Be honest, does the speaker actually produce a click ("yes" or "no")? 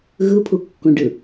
no